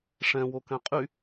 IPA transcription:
ʂ ɛ̃ w o k ɛ̃ qʼ y

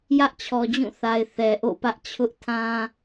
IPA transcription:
j ä˦ ʔ t͡ɕʰ ɔ˨ d͡ʑ ũ˦˨ θ a˨ ɪ̯ θ ɛ˨ ʔ o̰˦˨ p ä˦ ʔ t͡ɕʰ ʊ˦ ʔ tʰ ã˦

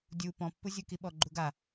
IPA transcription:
dʲ u p ɔ̃ pː u zʲ u k i ɓ ɔ ɡ͡ǃ u ɡ a

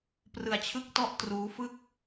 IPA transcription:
p r ɯ˧ a̯ t͡ɕʰ ɯ˥˩ k̚ t ɔ˥˩ ʔ t r uː˦˥ f ɯ˥˩ k̚

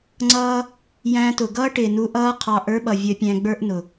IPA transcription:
ŋ͡ǀ ʌː˦ | j æ̃˧ t ʊ˨ ɡ ʌː˦ ʈ ɪ˨ n u˧ ʔ ʌː˦ qʰ ɑ˧ ʔ ə˞˦ ɓ ʌ˨ vʲ ə˧ pʲ æ̃˧ ɡ͡b ə˞˦ ʔ n ʊ˨

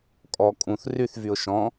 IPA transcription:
kʼ ɔ kʼ ũ θ r y θ v y ʊ̯ ʃ ɔ̃

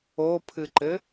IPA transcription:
o pʰ ɨ ǃ ɘ

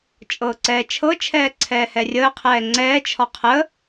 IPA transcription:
t͡ʃʼ ɤː ǀ ɛː t͡ʃʰ ɤ t͡ʃʰ ɛː ǀʰ ɛː h ɛ rʲ əː qʰ ɛː ŋ͡ǀ ɛː t͡ʃʰ ɒ qʰ ə

